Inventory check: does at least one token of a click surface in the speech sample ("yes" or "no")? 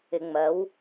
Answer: no